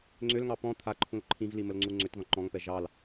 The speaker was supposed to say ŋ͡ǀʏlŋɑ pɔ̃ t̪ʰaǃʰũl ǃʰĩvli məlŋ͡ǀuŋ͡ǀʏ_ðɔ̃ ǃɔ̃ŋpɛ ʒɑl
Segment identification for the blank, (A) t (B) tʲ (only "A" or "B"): A